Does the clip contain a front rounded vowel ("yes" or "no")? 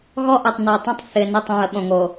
no